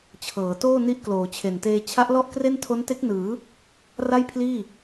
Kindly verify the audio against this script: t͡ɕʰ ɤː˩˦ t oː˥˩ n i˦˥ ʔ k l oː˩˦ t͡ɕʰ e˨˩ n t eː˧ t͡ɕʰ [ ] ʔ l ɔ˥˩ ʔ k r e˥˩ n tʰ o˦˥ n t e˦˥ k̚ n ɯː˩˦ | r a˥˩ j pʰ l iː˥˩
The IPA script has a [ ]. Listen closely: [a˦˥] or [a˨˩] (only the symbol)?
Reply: a˦˥